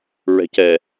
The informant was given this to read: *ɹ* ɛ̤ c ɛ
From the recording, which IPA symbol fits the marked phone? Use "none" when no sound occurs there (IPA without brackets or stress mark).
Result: ɹ